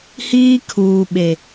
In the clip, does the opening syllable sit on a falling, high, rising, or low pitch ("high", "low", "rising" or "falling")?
high